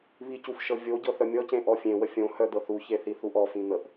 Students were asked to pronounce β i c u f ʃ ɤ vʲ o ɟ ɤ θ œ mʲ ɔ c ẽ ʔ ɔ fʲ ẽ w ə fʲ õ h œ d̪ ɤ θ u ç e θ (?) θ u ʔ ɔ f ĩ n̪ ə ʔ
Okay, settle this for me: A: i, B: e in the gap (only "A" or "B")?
A